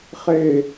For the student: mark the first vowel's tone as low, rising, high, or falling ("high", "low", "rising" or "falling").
falling